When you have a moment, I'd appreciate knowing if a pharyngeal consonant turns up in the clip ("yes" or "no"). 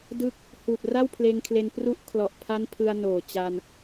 no